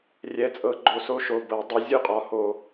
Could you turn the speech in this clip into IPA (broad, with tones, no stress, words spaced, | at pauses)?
rʲɛ˨˥t͡sʼɤ˧˩˧ ɡ͡ǃo˧˩so˦ʃo˩˧˩ bɤ˧˩˧ dˤɤ˨˥ zʲu˥˨qʼɒ˨˥ho˧˩˧